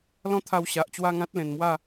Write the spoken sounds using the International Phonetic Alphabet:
lɔ̃˦t̪ʰa˧wɕa˨ʔ t͡ɕwa˥˧ŋã˦t̚lẽ˨˩nmwa˥˧

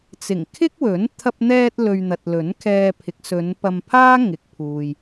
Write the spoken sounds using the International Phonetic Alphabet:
t͡sɪ˨˩ŋkʰɪ˥k̚wɵ˨˥n t̪ʰɐ˧p̚n̪ɛː˧t̚lɵ˨ɥ n̪ɐ˨t̚lɵ˨˥nkʰɛː˧pʰɪ˨˥k̚ sɵ˨˧npɐ˧mpʰaː˥ ŋɪ˨k̚pʰuː˨j

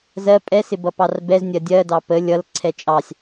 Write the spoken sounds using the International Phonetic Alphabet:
zɜ pʼɛ sɪbʌpɑrbɛz nʲɜdʲɜdɑ pə lʲʌl ǀʰɛt͡ʃʼɑsʲ

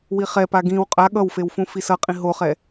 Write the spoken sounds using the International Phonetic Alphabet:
wiχɛpa ɡĩw qʼa ɠʌwfew fũfisʌqʼĩ ɦoχɛ

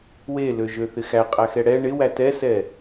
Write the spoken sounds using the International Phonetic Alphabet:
weløʒøθɪ xæqʼæxɛ ɽɛ ɳɪwæ tɛsɛ

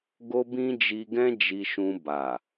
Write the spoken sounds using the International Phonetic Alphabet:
ɡo˧bĩ˧ d͡ʒi˧ɡɛ̃˦ d͡ʒi˧ʃũ˧ ba˨

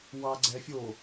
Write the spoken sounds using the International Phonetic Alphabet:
wɑ ɡ͡ǀɛ fʲo

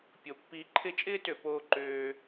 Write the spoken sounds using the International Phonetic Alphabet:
pʲo˩pːiː˨ǃʰɪ˦t͡ʃʼɪː˥ tø˩poː˨ǃøː˩

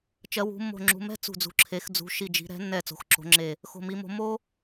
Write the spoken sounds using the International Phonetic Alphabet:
t͡ʃɜ˩˧wṳ˩˧mːo̤˨˩ ŋ͡ǁṳ˩˧mɛ̤˦ t͡sṳ˨˩d͡zṳ˩˧ǁʰe˩˧x d͡zṳ˩˧ʃi˨˩d͡ʒi̤˩˧ ɾɛ̤˩˧nːɛ˨˩ t͡so̤˩˧xǁo̤˩˧ŋ͡ǁe˨˩ | xo̤˨˩mi˩˧mo̤˩˧ mo˦

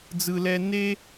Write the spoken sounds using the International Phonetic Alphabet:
d͡zɯ˩lɛ˨ ne˦

